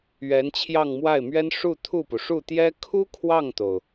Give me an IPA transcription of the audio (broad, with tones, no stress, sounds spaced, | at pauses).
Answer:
ɥ ɛ˧˥ n t͡ɕʰ j ɑ˥˧ ŋ m w a˥˩ ɪ̯ m ɥ ɛ˥ n ʂ u˥˧ t̪ʰ u˥˩ p u˩ ʂ u˥˩ t̪ j ɛ˥ kʰ u˥ kʰ w ɑ˥˩ ŋ t̪ o˩ ʊ̯